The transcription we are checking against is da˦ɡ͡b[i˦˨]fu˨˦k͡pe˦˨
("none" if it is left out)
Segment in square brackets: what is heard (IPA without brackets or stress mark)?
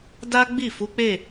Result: i˦˨